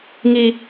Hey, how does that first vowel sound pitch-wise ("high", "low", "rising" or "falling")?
high